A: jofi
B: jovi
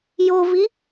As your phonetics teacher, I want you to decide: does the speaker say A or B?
B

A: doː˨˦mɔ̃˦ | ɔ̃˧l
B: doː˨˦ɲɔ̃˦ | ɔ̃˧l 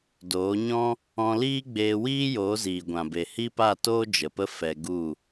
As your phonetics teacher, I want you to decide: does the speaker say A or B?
B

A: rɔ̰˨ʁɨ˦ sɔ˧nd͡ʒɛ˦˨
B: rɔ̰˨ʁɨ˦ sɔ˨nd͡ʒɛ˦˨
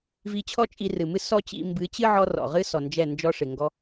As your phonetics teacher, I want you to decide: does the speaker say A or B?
B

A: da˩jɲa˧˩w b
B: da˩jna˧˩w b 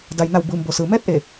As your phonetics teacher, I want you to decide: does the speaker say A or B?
B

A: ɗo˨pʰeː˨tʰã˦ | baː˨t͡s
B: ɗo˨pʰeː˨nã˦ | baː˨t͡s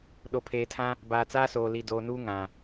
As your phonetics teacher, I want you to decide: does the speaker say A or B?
A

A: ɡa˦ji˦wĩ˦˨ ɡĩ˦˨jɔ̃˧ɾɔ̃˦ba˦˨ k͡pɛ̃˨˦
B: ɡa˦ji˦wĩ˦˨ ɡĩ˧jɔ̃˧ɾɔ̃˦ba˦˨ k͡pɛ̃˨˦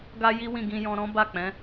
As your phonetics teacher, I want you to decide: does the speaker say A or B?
B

